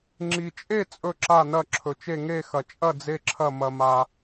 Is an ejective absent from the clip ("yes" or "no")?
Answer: no